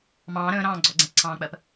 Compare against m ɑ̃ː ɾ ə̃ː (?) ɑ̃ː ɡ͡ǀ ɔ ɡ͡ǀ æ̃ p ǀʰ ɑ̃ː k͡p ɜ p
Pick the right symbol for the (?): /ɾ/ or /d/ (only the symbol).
ɾ